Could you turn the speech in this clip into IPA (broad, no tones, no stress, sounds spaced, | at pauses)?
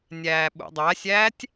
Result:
nʲ æː ɓ ṵ dˤ æ sʲ æː tʲ